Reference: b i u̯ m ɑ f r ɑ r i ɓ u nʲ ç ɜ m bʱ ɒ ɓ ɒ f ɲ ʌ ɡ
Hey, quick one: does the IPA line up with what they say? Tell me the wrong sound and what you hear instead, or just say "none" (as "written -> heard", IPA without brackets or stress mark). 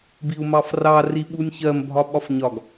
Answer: ʌ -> ɒ